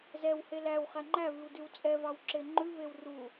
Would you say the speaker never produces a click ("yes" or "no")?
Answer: no